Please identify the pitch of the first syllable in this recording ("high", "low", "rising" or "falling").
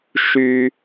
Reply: high